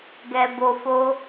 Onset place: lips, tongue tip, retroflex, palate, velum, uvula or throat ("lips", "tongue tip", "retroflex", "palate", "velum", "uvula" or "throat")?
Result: velum